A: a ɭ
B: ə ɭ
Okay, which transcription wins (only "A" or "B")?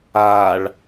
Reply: A